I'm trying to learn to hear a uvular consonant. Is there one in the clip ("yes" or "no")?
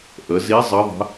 no